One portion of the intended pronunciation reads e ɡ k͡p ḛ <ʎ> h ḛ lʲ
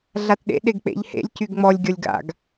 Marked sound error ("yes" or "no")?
no